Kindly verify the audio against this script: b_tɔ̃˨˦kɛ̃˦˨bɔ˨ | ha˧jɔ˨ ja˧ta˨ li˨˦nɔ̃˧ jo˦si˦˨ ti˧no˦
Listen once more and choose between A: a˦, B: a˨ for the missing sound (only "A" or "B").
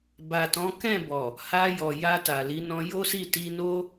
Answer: B